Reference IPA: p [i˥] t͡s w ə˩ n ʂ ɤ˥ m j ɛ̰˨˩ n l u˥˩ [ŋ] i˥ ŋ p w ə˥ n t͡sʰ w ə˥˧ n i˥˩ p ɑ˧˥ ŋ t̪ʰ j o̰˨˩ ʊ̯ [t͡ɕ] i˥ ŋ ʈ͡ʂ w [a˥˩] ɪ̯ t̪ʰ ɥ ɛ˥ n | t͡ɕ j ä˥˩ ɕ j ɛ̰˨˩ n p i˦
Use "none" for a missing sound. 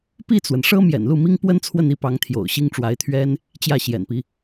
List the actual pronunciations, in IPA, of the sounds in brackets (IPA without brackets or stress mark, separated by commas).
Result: i˥˩, m, ɕ, a˧˥